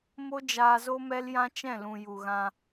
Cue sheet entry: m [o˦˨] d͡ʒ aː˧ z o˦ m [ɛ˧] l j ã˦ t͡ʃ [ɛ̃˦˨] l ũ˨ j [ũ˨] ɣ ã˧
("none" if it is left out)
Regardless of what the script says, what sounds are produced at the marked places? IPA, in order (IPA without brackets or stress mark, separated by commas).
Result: o˦, ɛ˦, ɛ̃˦˨, u˨